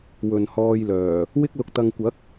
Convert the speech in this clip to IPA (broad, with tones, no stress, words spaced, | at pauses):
wɵ˨nhɔː˧jlœː˨˩ | wɪ˥k̚lʊ˧k̚t̪ɐ˧ŋ kʷɐ˨˥k̚